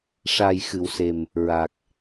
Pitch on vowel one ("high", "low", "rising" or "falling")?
low